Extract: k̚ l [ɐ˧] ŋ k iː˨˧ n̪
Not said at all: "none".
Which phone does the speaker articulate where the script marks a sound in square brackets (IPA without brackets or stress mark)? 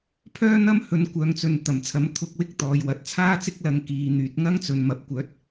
ɐ˧